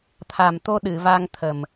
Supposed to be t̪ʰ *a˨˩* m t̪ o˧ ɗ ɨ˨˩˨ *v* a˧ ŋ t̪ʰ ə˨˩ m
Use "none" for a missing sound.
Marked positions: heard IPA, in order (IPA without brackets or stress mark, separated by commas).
a˨˩, v